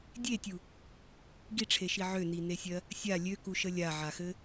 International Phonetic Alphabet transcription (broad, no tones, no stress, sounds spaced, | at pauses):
dʲ e tʲ u | ɡ i ʈ͡ʂʰ e ʃ i ʕ ø n i n e sʲ ɜ | sʲ a lʲ ø k u ʃ ə lʲ a ʕ a x ɘ